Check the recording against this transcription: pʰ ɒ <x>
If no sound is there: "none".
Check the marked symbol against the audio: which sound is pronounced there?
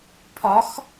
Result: x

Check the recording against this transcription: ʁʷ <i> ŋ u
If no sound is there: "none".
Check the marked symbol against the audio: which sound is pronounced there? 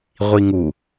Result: i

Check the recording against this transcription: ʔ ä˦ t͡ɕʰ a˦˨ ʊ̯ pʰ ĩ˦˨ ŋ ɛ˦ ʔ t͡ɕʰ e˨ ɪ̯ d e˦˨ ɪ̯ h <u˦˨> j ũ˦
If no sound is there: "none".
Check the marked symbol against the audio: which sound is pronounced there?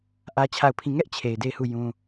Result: u˦˨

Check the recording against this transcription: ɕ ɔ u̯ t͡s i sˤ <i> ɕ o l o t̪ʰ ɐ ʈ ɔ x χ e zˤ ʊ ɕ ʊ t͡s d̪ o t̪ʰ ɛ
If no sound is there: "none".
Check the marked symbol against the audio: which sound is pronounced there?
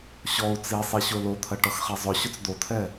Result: i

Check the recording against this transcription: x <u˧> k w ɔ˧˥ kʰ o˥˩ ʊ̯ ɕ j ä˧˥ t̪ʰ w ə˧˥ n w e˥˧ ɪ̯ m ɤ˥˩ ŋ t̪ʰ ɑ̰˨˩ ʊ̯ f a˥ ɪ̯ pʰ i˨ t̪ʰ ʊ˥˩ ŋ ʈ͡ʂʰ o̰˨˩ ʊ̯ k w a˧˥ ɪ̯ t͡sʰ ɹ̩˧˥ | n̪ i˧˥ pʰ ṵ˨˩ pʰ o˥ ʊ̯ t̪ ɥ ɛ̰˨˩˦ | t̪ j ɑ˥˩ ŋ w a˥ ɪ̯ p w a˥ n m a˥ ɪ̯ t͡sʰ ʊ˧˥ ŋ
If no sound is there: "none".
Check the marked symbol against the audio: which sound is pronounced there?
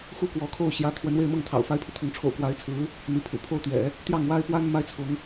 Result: u˥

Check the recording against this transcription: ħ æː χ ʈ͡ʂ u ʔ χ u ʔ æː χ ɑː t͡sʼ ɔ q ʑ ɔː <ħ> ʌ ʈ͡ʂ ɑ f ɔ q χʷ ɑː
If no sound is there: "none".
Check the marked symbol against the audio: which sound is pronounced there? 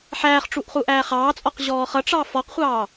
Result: χ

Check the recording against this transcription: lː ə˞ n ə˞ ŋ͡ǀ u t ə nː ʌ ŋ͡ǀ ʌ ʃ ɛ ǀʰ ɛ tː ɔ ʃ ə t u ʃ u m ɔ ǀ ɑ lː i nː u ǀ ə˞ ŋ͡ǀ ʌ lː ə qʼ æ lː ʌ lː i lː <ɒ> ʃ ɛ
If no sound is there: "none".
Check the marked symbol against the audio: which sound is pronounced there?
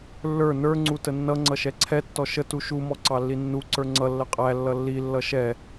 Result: ʌ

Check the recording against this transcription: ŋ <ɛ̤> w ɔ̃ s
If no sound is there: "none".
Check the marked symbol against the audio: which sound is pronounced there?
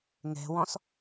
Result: ɛ̤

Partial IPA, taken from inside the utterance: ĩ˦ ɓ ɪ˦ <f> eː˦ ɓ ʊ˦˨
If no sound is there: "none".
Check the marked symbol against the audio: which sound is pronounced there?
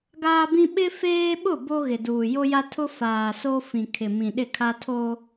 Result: f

